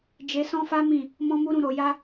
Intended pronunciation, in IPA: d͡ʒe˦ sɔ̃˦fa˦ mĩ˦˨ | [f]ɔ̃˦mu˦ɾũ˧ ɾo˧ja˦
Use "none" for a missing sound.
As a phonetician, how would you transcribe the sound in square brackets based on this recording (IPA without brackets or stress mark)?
m